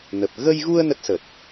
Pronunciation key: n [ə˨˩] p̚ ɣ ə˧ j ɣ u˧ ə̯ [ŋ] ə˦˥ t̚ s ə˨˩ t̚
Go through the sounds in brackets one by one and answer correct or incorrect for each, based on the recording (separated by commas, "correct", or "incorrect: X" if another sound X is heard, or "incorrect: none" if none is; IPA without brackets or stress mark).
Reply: correct, incorrect: n